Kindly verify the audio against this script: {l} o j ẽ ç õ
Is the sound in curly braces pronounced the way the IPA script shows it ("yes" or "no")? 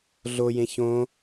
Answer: no